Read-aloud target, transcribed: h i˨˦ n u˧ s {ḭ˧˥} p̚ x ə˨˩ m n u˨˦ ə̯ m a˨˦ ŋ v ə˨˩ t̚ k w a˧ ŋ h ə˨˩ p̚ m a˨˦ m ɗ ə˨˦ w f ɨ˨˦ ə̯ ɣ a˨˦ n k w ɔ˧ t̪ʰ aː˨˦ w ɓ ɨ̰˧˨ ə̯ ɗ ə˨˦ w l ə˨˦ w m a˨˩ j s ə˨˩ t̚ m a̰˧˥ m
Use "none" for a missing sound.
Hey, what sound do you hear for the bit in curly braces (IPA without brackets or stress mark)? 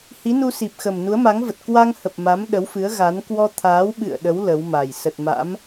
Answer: i˨˩